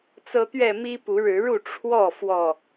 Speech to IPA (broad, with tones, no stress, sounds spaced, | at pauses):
t͡s ɤ˦ t̪ ɥ ɛ˥˨ m i˦ p u˨˦ ɻ ɻ̩˨˦ ɻ u˥˨ ʈ͡ʂʰ w ɔ˥˨ f w ɔ˥˨